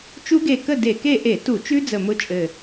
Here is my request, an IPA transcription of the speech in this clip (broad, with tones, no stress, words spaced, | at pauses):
t͡ʃu˦˥ɡe˧˩kə˥˨ de˧˩˧ke˥˨ ʔe˧˩˧tu˧˩˧t͡ʃʉ˦˥ d͡zə˧˩mʊ˦˥t͡ʃʼɘ˧˩